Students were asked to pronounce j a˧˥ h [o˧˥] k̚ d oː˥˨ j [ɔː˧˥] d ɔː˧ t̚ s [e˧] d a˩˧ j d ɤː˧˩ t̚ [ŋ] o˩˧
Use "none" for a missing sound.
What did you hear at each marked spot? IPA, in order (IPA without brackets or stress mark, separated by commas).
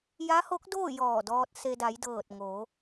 o˧˥, ɔː˧˩, e˧, ŋ